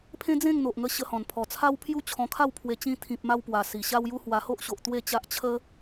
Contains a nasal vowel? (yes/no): yes